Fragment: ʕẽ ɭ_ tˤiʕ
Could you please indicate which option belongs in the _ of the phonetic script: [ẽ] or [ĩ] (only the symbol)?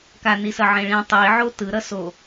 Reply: ĩ